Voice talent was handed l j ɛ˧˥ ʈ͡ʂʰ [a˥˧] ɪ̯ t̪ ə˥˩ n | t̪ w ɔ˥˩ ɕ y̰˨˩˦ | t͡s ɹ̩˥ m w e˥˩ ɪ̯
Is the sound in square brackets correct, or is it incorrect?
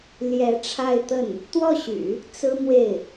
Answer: correct